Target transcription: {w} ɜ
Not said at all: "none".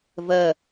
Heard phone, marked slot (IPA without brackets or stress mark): v